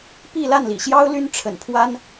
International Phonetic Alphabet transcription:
p i˥˧ l a˥˩ n l ḭ˨˩ ɕ j ɑ˥ ʊ̯ l y˥ n ʈ͡ʂʰ ə̰˨˩ n pʰ w a˥ n

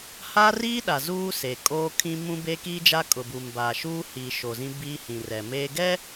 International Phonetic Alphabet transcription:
h a˦ r iː˦ ɗ a˨ z uː˦ s e˨ kʼ oː˦ kʰ ĩ˦ m ũ˦ b eː˦ k iː˦ d͡ʒ a˦ kʼ ʊ˨ b uː˨ m b aː˨ ʃ uː˦ h iː˨ ʃ o˨ z ĩ˦ b iː˦ h ĩ˨ r ɛ˨ m eː˦ ɡ ɛ˦

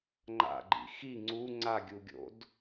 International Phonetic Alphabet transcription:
ŋ͡ǃ a̰ ɡ͡ǃ ḭ x i ŋ͡ǀ u ŋ͡ǀ a ɡʲ u ɡʲ o̰ d

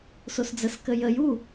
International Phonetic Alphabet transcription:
s o s d͡z ə s k ə j ə j u

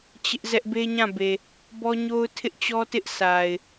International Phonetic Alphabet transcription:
t͡ɕ ɪ˦ ʔ z ɛ˦ ʔ b e˦ ɲ ã˦˨ b e˨ | b ɔ˦ ɲ o˦ ʊ̯ tʰ ɪ˦ ʔ t͡ɕ ɔ˦ t ɪ˦ ʔ s a˨ ɪ̯

